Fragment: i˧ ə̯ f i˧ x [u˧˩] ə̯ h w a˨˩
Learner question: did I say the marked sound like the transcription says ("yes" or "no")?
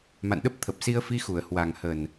yes